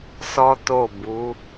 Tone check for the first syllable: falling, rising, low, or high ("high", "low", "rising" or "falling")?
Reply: high